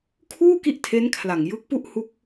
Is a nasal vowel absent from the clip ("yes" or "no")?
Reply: yes